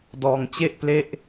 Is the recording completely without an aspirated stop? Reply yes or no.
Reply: yes